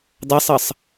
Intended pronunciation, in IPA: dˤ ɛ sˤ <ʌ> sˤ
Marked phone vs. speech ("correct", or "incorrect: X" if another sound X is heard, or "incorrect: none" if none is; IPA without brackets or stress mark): correct